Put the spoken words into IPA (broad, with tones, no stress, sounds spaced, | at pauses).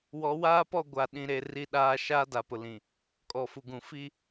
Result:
w ɔ˨˦ w aː˦ p ɔ˦˨ ɡʷ a˨ ɗ ĩ˨ ɾ e˨ r i˦ ɗ aː˦ ʃ aː˦ d a˨ p ʊ˨ l ĩ˨ | kʼ ɔ˨ f u˨ ɡ ũ˨ f i˦